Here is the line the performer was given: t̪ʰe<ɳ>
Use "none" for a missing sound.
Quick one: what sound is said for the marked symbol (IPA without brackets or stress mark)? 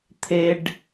ɖ